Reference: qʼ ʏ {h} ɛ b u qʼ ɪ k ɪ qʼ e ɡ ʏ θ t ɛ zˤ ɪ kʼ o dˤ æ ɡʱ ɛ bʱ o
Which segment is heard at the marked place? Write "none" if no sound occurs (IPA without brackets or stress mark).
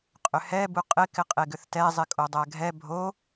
h